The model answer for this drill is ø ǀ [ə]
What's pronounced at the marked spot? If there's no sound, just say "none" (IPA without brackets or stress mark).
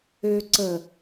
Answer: ə